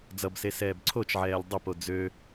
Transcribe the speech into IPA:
d͡z ʌ b s e s ɛː b ǀʰ o t͡ʃ ʕ ɛː lʲ dˤ ə p o d͡z ø

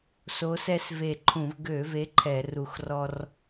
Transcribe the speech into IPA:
s o˨˦ s ɛ˦ s v e˧˩ ǃʰ ũ˧˩˧ v ɡ ø˧˩˧ v e˨˦ ǃʰ ɛ˧˩˧ r u˧˩ x r ɔ˦ r

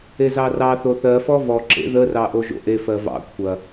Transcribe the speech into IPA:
e z ɑ r ɑ θ o θ ɜ f ɔ v ɔ ǁ ḛ ð ə r ɑ ʔ o ʒ o̰ ʔ e f ɜ v ɑ̰ kʷʰ ɐ

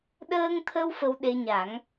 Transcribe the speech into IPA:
ɗ əː˧ ŋ t̪ʰ ə˧ w f ə˧ w ɗ e˧ ɲ a˨˩˦ ŋ

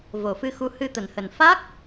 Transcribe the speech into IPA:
v o˨˩ f ɨ˧ x u˨˦ h ɨ˧ t̪ ə˧˩ n h ə˨˩ n f a˦˥ k̚

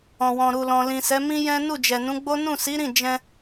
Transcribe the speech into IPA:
ɔ̃˨ w ɔ̃˨ ɾ u˨ l ɔ̃˨ l ĩ˨ s ɛ˨˦ m ĩ˦ j ɛ̃˦ n u˦˨ d͡ʒ ɛ˨ n ũ˨˦ ɡ͡b o˦ n ũ˦˨ s i˨˦ ɾ ĩ˦˨ d͡ʒ ɛ̃˧

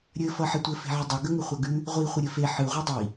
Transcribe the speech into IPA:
ɾʲ ɘ f ʌ ħ ɘ tʷ ɘ f e̤ ʕ ə dˤ ʌ ɡ ə ŋ ɘ χʷ ʌ ɡ ʉ | ʁʷ i χʷ ə ɾʲ ɘ f e ħ ɯ ʁʷ ʌ dˤ i

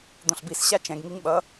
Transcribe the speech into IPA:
d̪ õ ɬ b i s ɕ a t͡ʃ ɛ̃ ɡ ŋ i ŋ ɓ ʌ

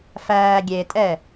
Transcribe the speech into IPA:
f æː ɡʲ e tʼ ɛ

